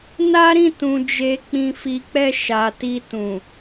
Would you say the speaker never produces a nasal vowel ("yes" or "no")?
no